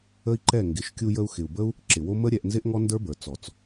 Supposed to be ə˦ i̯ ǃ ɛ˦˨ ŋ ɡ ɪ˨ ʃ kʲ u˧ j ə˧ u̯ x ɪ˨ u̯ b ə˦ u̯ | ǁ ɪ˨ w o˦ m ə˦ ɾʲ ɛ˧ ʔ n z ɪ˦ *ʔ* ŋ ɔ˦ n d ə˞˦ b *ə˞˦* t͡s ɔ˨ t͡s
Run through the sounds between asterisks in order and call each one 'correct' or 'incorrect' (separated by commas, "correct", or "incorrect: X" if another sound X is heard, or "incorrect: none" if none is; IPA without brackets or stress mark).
correct, incorrect: ə˞˨